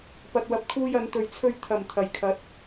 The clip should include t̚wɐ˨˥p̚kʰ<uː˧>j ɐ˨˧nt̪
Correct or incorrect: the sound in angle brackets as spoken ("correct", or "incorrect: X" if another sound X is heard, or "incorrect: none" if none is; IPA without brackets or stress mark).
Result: correct